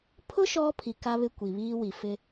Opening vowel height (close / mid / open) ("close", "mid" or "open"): close